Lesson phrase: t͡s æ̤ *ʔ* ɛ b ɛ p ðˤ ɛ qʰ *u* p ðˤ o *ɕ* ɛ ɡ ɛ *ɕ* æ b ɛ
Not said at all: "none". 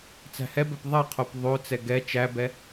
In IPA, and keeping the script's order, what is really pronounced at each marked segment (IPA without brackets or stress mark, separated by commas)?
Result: h, o, t͡s, t͡ʃ